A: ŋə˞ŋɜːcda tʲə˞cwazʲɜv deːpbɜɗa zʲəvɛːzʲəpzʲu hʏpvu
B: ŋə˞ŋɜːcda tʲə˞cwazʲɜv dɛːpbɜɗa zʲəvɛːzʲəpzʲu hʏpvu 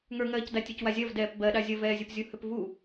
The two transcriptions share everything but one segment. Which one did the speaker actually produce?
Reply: B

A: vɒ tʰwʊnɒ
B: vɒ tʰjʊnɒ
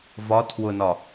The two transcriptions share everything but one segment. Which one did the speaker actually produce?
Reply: A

